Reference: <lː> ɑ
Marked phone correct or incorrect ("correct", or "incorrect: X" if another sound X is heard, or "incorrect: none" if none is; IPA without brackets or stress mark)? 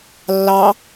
correct